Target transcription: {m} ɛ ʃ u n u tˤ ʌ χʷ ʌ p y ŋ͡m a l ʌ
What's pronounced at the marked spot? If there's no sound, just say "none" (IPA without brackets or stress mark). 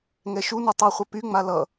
ŋ